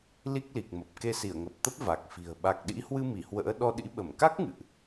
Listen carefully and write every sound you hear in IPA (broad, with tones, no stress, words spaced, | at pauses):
li˦˥k̚li˨˩k̚mə˨˩p̚ ke˧si˧˩ə̯ŋə˨˩p̚t̪ə˦˥p̚ va˨˩k̚fi̤˨˩ə̯ ɓa˨˩k̚ɗḭ˧˥hwɨ˧ mi˧˩hwə̰ː˧˥ ɗɔ˧ɗḭ˧˥ ɓə˧˩mka˦˥k̚ ŋɨ̰˧˨ʔ